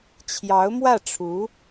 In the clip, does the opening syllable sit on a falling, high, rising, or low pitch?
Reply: rising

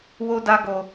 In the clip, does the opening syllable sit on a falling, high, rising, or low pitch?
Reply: high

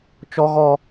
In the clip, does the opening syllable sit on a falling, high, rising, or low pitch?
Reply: high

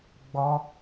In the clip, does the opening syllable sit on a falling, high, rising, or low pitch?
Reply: high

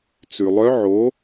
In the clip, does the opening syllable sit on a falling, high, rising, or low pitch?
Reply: low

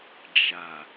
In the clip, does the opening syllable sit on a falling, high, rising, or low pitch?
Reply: low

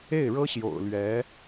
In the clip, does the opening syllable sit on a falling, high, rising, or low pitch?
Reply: falling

